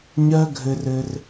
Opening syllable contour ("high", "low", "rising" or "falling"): high